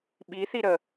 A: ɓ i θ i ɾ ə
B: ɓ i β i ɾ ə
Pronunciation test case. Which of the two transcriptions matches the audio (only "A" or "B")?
A